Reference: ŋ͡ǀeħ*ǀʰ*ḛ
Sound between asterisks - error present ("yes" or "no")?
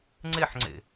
yes